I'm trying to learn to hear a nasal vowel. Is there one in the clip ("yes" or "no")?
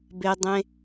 yes